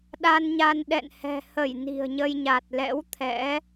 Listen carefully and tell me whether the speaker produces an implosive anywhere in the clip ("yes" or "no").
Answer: yes